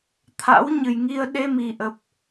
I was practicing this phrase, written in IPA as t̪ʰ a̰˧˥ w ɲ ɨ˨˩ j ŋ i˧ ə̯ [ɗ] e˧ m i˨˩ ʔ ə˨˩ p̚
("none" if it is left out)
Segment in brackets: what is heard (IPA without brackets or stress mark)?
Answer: ɗ